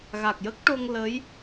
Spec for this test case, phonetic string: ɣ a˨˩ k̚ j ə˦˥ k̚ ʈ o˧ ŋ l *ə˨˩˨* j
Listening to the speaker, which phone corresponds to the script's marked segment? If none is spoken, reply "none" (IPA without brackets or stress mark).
ə˧˥